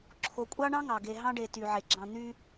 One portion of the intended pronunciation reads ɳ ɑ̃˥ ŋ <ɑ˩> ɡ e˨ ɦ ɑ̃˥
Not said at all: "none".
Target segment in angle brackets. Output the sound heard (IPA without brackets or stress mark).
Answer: ɑ˩